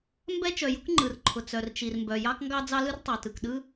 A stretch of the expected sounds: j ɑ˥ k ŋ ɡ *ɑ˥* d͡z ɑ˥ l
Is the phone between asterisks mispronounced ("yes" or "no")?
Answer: no